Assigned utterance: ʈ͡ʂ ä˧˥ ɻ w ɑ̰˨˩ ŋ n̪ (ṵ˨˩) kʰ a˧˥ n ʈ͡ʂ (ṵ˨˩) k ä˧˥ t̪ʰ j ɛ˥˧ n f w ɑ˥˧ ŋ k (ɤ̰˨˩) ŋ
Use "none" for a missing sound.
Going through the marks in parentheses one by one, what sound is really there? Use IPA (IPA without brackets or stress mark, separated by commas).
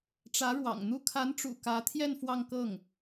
u˥˩, ṵ˨˩, ɤ˥˩